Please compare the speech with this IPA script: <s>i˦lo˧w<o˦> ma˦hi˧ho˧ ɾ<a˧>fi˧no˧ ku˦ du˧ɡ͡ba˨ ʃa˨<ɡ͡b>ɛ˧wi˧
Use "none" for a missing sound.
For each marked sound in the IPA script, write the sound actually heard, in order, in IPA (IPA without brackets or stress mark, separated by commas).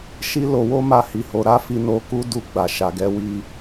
ʃ, o˦, a˦, ɡ